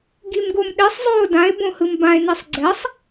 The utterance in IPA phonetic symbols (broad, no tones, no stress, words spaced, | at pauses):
ɡimɡomɗesˤ zˤoːdãe̯ bõhɯmbãe̯ nesˤɡ͡ǀɛsˤ